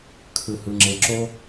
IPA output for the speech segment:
kʰɯ˨hɯ˨ŋ͡ǁe˨ǁo˧

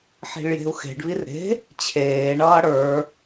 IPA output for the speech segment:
ħi̤ɭje̤u̯xe̤ɖβir ɾe̤ | t͡ɕʰeːɳʌː ɽə˞

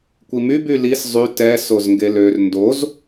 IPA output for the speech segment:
kʷimy bylis zˤy tɛ sozŋɡelør ndoz

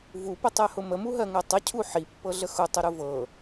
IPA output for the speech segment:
vupətˤɜhʊ məmuɦɜŋɜ tˤəcʰu ħipːɤɮə xʊtˤəɾʊ vɤ

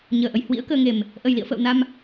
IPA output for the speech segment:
ɲəː˨˩ʔə˨˩j hwḭ˧˥ə̯kəː˧ŋe˨˩m | ʔə˨˩jlḭ˧˨ə̯fə̰ː˧˨w na˧m

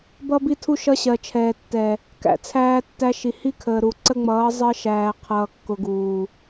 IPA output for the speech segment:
bʌ˦bi˦tʰu˦ ʃʌ˦ɕɜ˨t͡ʃʰɛː˨tːɛ˨ | kæ̰˨t͡sʰæː˦tːæ˦ ʃi˨hi˦kʰəː˨ ɾu˨ ǀə˦ŋ͡mʌː˨˦ zˤɜ˦ʃæː˨ qʰʌː˨kːʊ˨ɡuː˨

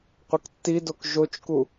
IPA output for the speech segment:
qʷɪktːidok ʒot͡ʃku

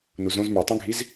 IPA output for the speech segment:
nuzõz mə˞tˤũɡʱiz

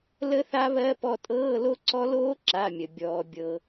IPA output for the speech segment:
lə˦˥θa˦˥βɜ˧˥˧ pɔ˦˨tʼɤː˧˥˧lo˦˥ǀɔ˦˥ loː˦˥ǁa˩˧˩mʲə˩ bʲɔː˩bʲɤ˩

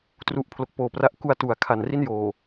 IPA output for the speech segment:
tru˦˥ʔpʰlo˨˩k̚poː˨˩pra˦˥ʔ ku˧a̯ tu˩˦a̯ kʰa˨˩nri˥˩njoː˨˩

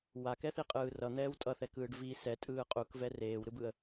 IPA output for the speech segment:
wakɛθiqʼɯː rʌn̪ɛːw tʼʌθɛkɯːɖ vi sɛtʼɯː qʼukvɛ reːwɾɯbɯə̯

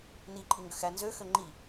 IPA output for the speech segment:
niǃʼi ŋɡøxænzø xøŋ͡ǃi

